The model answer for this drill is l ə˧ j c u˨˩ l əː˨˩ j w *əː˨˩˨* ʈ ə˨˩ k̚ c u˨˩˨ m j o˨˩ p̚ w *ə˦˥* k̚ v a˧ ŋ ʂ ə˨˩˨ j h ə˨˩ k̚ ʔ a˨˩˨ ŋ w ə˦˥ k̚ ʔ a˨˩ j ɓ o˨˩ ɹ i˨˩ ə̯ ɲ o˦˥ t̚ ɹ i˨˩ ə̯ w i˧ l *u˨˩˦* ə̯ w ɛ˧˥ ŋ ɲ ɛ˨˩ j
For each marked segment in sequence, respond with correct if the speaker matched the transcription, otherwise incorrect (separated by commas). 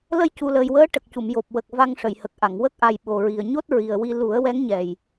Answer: incorrect, incorrect, correct